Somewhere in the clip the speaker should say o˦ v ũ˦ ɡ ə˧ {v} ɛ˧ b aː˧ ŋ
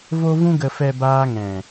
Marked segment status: incorrect: f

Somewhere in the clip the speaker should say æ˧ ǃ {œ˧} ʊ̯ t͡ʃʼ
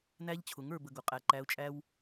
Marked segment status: incorrect: æ˧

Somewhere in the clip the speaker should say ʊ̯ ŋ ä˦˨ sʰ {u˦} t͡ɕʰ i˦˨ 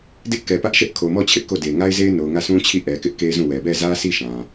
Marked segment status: incorrect: ũ˦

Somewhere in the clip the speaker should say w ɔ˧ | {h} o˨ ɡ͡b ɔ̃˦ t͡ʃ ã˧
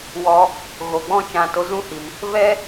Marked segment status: incorrect: ɣ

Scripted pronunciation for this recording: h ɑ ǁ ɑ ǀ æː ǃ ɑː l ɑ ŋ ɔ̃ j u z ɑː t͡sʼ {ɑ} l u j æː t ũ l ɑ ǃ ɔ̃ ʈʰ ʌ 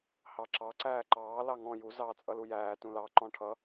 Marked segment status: incorrect: ʌ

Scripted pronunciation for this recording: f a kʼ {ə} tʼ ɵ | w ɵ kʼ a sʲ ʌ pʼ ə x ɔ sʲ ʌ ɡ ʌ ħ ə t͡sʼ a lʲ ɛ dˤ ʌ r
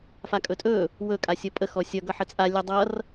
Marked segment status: incorrect: ɵ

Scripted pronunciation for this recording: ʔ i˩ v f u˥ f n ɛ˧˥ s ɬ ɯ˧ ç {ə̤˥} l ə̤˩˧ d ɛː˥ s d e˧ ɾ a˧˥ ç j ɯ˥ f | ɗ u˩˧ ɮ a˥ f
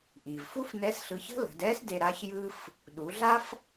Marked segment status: correct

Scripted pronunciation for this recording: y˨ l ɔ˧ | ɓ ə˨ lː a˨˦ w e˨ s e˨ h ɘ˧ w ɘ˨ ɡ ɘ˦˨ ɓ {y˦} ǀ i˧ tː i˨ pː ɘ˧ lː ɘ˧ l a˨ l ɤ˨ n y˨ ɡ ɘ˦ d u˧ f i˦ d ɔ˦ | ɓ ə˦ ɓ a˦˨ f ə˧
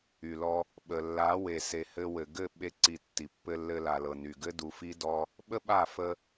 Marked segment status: incorrect: e˦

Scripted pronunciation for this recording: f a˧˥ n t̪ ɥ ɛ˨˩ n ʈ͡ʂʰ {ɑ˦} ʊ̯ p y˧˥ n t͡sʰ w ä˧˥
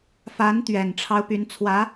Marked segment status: correct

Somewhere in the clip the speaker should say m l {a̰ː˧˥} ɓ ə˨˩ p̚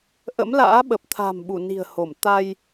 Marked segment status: correct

